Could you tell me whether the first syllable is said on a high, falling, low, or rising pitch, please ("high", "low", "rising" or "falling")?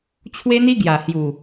high